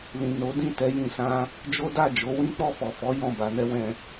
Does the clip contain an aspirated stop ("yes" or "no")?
no